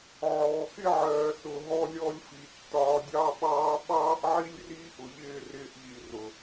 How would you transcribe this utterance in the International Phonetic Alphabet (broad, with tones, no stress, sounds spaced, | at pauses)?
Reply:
ʕ ɔː˨ x ɪ˦ ʕ ɜː˨ s ʊ˨ ɦ ɔ˧ lʲ ɔ˧ lʲ f i˨ tː ɒː˧ dʲ ɑ˦ ɓ ɑː˦ ɓ ɑː˦ ʔ ʕ i˦ lʲ r iː˦ ʔ ʊ˨ ʎ ɪː˦˨ r ɪː˧ ʔ ʎ i˨ r ʊ˨